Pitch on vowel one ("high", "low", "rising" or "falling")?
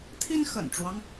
high